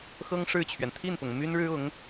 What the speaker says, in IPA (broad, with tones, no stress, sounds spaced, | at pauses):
x ɤ˥ ŋ ʂ ɻ̩˥˩ t͡ɕʰ ɥ ɛ˩ n t̪ʰ i˥˩ n p ʊ˩ ŋ m y˥ n ɻ ɻ̩˥ ʊ˧˥ ŋ